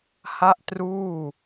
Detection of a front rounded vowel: absent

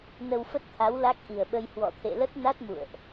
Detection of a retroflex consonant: absent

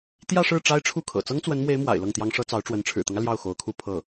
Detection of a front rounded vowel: absent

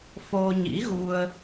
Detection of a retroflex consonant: absent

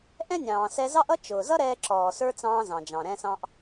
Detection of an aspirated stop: absent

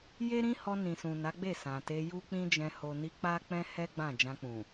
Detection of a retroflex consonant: absent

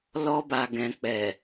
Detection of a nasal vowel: present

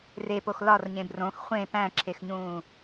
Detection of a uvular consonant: present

